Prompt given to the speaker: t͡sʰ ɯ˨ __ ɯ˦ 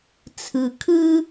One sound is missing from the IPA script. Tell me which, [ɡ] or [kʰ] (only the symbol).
kʰ